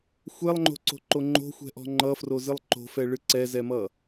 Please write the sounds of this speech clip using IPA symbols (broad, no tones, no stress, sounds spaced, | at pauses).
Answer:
xʷ ɛ lˠ ŋ͡ǃ o̤ ǀ o̤ ǃ o ŋ͡ǃ o̤ xʷ ɛ̤ ʔ ɔ̤ ŋ͡ǃ ʌ f r o z ɨ lˠ ǃ o̤ f ɛ ɭ ɨ ǀ ɛ z ɛ m ʌ